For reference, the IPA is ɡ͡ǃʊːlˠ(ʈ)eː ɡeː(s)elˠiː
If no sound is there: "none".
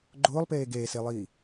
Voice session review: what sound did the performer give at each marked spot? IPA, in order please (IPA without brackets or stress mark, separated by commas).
p, s